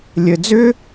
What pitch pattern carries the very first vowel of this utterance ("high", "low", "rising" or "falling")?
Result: low